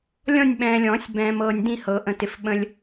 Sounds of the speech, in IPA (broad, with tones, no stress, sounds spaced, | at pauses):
lʲ ɔ̃˥˧ nʲ ɓ ɛ̃ː˨ lʲ ɔ̃ː˨˩˦ sʲ b ɛ̃ː˨ m ɤː˨ nʲ d ĩ˥˧ h ɤ˨˩˦ ʔ ə̃˨ t ɪ˨ f ɓ ə̃˨ lʲ